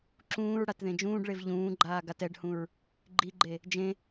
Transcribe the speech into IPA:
ǁ ũː ɹ ɽ a t ð ẽ d͡ʒ ũː ɖ ɭ e v ʎ ũː ɡ͡ǃ aː ɡ a t ɛ ɖ h ũ ɹ | ɡ͡ǃ i ɡ͡ǃ e | d͡ʒ ẽ

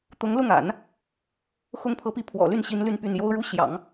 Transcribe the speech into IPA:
t̪ ʊ˧˥ ŋ l ʊ˥˩ ŋ a̰˨˩˦ n | x ʊ˥ ŋ pʰ ɤ˧˥ p i˥˩ pʰ w ɔ̰˨˩ l y˥˩ n ɕ i˥ n l y˥˧ n p y˥˩ n j o˥ ʊ̯ ɻ u˥ ɕ j ɑ̰˨˩˦ ŋ

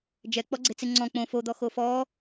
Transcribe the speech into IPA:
d͡ʒ ɛ k͡p ɔ ɡ͡ǀ e̤ t͡s e ŋ͡ǀ ɔ̃ k͡p õ f o d̪ ɔ x o f ɔ

